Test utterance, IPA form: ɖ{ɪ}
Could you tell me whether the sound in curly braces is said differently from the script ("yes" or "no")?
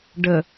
yes